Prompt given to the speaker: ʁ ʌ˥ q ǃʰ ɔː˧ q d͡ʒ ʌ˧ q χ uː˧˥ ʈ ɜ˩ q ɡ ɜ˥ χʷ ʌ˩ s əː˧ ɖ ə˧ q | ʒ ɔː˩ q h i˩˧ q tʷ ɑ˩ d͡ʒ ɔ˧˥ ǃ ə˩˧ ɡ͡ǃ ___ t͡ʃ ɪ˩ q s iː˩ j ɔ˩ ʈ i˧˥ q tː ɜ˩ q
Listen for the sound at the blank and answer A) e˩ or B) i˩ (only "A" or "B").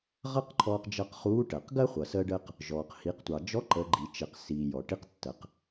B